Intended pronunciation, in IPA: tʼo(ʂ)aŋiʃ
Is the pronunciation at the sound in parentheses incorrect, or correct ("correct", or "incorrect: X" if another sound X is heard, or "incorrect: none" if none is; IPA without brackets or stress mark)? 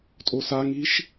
incorrect: s